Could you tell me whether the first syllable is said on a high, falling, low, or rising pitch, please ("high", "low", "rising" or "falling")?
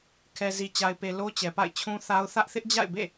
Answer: low